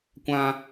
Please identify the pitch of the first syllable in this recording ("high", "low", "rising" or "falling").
high